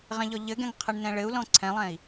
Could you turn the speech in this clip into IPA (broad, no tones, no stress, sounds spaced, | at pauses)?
ʁ ɛ̃ ʎ ɔ ʎ ɘ ɡ ɛ̃ ŋ qʰ ə ɳ n ɛ̃ ɭ ɘ u̯ l ɔ̃ ǀʰ ɛ̃ lˠ ɛ̃ i̯